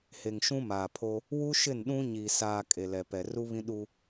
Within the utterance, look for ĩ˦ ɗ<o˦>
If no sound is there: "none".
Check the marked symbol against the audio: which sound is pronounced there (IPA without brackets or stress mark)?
u˦